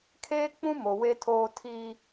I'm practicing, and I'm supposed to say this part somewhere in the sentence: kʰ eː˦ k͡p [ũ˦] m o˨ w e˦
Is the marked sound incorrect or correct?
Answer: correct